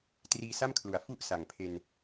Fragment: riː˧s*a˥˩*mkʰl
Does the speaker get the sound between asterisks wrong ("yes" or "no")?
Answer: no